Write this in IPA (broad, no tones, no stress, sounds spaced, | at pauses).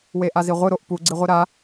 w e ʔ a z i ʁʷ ɨ ɾ o ʔ p u ɡ͡ǀ i ʁʷ i ɾ a